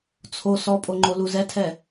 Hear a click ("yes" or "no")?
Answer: yes